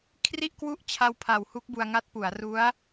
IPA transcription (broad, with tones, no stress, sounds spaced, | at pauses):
kʰ r i˥˩ ʔ k w u˥˩ ʔ t͡ɕʰ a˧ w pʰ a˩˦ w h u˦˥ k̚ b u˧ a̯ ŋ a˦˥ t̚ p u˩˦ a̯ r u˦˥ a̯